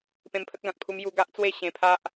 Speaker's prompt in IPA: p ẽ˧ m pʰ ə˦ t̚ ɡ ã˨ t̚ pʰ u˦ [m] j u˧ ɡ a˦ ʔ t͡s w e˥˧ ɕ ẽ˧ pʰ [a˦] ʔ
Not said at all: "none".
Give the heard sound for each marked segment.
m, a˦

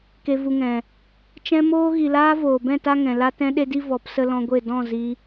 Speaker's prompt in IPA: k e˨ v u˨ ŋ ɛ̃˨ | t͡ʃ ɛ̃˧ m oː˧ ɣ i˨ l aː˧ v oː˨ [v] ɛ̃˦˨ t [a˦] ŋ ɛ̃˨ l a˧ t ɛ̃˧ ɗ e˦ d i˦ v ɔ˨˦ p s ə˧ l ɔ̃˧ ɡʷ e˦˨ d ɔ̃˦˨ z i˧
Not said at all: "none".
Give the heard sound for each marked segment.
b, a˦

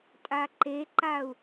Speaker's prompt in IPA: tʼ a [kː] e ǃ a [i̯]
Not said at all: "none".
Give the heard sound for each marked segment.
ǃ, u̯

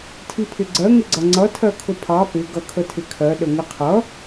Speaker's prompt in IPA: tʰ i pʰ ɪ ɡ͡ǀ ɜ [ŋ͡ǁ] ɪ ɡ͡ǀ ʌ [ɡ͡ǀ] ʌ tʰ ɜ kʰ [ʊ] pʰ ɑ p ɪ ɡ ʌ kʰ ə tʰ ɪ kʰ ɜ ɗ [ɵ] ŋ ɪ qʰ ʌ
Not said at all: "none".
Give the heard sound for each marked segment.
ŋ, ŋ͡ǀ, ʊ, ə

